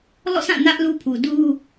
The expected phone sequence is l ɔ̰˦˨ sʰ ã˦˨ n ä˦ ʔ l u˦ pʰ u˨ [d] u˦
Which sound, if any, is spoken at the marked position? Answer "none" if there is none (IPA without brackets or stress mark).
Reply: d